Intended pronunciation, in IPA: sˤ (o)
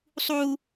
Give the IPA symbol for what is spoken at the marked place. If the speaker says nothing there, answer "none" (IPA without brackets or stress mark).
u